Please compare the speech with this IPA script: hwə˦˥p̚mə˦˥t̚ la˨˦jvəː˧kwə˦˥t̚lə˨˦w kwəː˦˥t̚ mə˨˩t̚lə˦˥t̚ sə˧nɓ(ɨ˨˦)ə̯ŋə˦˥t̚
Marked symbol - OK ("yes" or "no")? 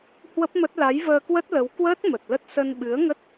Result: yes